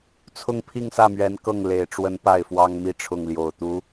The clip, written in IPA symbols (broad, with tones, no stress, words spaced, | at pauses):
t͡sʰʊ˥˧ŋpʰi˥˧ŋsä˥˩mɥɛ˧˥n kɤ˥˩ŋ le˨˩ɪ̯ʈ͡ʂwə˧˥n pa˥˩ɪ̯fwɑ˥ŋmi˥˧ ʈ͡ʂʰʊ˥˩ŋljo˨˩ʊ̯t̪u˧˥